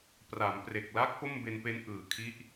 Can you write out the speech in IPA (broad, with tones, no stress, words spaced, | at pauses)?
pra˩˦mpre˨˩k̚la˦˥k̚ po˥˩mbe˧npe˦˥nʔɯː˨˩ kʰi˦˥ʔ